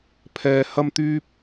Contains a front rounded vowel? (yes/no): yes